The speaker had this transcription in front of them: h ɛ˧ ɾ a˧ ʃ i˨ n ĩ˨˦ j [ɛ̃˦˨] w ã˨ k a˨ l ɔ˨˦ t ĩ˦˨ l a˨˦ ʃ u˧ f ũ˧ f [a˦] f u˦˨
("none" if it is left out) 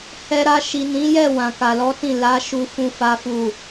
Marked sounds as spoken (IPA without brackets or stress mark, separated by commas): ɛ˦˨, a˦